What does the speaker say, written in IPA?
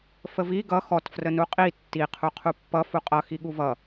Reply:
fəvi ɡʌ xɔt frənuqʼi tːi qʰuqʰupːʌ fuqʼʌ xiɠuvʌ

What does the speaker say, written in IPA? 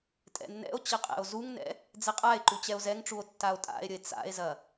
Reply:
tʼɛ̰nːɛ̰o̯t͡ɕə qʼɛ̰o̯zuŋnɛ̰ | d͡zɛqʼae̯ǃu t͡ɕɛo̯zɛŋʈ͡ʂuo̯ tːao̯tʼa̰e̯ɾʲəe̯ t͡sa̰e̯zɐ

